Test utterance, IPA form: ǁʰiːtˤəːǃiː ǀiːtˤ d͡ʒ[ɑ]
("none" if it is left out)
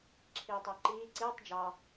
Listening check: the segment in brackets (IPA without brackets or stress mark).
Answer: ɑ